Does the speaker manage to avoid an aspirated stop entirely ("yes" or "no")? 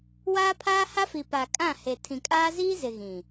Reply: no